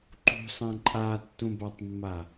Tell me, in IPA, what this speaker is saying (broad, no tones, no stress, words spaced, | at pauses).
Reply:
ǃṳsˤɛ̃ ǃʼatːũbatˤmːa